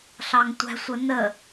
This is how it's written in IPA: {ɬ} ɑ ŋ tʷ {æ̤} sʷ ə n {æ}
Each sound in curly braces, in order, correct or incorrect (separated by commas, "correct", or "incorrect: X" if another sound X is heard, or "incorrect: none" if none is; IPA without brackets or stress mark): correct, correct, incorrect: ə